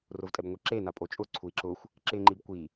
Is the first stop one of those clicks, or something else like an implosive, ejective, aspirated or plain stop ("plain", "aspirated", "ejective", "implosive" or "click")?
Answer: ejective